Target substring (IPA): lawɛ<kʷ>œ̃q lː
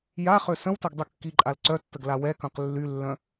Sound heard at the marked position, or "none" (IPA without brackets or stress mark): k